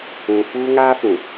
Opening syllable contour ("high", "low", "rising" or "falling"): low